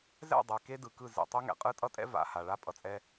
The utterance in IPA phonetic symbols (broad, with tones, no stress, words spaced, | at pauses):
zɛ̰˦˨dˤɛ˨ ke˦dɯ˨kɯ˦˨ zḛ˨tˤe˦ŋɛ̰˨qʼɯ˦ tʼʌ˦tʼɛ̰˦ va̰˨ ha˨ ɭa˦pʼʌ˨t͡sʼɛ˦